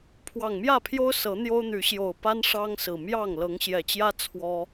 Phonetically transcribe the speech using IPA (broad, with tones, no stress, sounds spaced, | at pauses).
pʰ w ɑ˨˩ ŋ m j ä˥˨ pʰ j o˦ ʊ̯ s ɤ˨˦ n̪ j o˦ ʊ̯ n̪ y˨˦ ɕ j o˨˩ ʊ̯ p a˦ n ʂ ɑ˦ ŋ s ɹ̩˨˩ m j ɑ˥˨ ŋ l ɤ˨˦ ŋ ɕ j ɛ˨˩ t͡ɕ j ä˦ t͡sʰ w ɔ˦